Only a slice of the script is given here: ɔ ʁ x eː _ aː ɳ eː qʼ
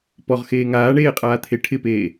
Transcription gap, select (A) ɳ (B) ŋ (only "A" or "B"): B